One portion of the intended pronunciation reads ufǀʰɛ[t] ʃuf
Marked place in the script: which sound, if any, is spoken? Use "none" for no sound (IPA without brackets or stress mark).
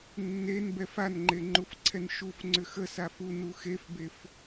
n